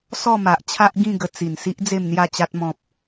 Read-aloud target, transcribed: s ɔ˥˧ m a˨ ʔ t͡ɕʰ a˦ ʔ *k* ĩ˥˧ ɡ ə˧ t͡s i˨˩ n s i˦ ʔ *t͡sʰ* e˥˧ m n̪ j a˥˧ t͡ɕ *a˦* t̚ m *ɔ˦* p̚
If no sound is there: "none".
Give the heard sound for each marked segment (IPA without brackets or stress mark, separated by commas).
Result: ɡ, d͡z, a˦, ɔ̃˦